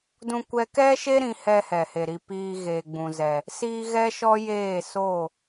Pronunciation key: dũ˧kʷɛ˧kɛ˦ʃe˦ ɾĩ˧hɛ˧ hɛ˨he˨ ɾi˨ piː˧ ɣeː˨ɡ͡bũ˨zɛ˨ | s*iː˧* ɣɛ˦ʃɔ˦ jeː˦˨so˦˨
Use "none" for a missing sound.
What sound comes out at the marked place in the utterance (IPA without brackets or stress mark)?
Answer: iː˧